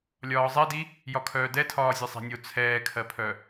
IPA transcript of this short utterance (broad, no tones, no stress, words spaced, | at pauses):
lʲɒːzˤɛdi | jɒkʰœːdɛtʰɒː zʲɛsˤɛ̤nʲo t͡sʰɛːkʰɜpʰœ